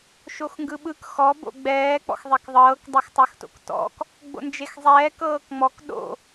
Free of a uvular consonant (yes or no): yes